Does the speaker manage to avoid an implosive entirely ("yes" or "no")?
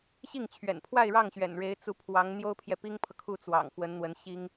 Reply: yes